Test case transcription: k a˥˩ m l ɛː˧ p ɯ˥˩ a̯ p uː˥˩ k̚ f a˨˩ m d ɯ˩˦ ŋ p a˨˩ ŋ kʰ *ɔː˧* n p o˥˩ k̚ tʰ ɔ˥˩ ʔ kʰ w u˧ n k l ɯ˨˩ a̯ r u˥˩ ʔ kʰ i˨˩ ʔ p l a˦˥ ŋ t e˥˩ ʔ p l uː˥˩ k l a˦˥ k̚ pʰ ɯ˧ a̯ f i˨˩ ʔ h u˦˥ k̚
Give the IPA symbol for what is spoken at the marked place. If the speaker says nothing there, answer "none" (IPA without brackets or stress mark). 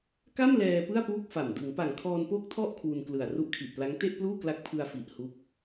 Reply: ɔː˧